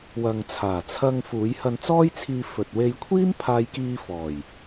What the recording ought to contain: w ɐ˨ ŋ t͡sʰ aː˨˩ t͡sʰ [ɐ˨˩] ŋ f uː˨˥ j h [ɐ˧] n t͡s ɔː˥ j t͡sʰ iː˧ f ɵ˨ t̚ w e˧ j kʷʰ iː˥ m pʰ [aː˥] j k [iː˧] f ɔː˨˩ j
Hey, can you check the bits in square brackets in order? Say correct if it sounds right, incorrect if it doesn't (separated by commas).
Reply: incorrect, correct, incorrect, correct